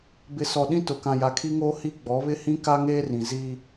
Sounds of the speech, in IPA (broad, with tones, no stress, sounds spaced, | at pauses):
b ɪ˨ s ɔ˨ ɗ ĩ˦ t ʊ˨ k ã˨ j a˨ kʰ i˦ ŋ oː˦ h i˦ ɡ͡b ɔ˨˦ β ɪ˦ h ĩ˦ k a˦ ŋ eː˦ r ĩ˨ z i˦